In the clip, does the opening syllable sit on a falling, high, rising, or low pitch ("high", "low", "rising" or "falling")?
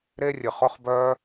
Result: high